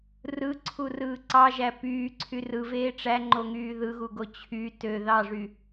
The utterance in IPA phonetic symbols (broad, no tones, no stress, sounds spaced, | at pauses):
r ɯ ǀʰ u r ɯː ǀ ɑ ʒ æ p yː ǀʰ y r ɯ v eː ʈ͡ʂ æ ŋ͡ǃ o ŋ yː ð ɯ ɣ u ɡ o t͡ɕʰ y t ø ð ɑ ʐ y